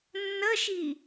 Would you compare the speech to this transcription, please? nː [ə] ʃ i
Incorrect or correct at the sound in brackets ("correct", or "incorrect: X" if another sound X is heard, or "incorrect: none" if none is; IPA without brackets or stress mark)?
correct